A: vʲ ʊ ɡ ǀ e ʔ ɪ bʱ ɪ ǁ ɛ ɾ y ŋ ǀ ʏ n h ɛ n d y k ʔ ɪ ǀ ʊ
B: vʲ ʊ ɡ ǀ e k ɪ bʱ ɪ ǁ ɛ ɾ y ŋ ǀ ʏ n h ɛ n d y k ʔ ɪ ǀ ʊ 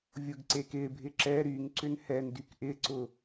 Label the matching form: B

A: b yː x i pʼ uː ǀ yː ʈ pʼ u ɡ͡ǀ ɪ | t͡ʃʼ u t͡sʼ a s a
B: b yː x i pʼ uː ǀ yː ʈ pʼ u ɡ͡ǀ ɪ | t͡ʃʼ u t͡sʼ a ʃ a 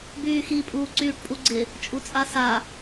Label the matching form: A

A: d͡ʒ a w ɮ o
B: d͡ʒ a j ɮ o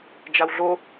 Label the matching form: A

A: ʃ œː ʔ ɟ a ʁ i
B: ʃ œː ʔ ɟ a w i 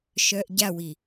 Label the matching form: B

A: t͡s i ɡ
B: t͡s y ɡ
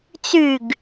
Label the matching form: B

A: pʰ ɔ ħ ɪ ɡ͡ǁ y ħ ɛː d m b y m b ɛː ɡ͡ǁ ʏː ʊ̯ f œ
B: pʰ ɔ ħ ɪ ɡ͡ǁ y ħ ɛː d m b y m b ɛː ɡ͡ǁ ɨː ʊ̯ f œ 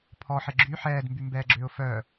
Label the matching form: A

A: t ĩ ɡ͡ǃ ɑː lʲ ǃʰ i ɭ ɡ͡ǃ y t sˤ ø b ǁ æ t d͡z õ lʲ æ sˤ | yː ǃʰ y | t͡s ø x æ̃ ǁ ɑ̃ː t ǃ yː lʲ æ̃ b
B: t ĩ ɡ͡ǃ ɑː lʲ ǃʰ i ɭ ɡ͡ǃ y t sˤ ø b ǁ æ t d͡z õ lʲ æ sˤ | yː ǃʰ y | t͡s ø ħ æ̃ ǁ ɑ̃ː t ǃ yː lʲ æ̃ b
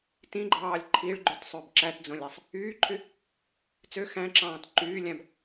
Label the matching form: A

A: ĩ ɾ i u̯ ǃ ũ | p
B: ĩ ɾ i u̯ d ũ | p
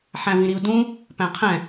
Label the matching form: B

